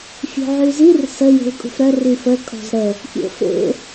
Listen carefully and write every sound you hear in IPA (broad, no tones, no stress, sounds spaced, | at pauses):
fʲ o̤ ʕ y z i r s ə j e̤ l kʼ ṳ f ɾ œ r y f ə kʼ ɔ̤ z ɾ ə | pʲ o̰ f ḛ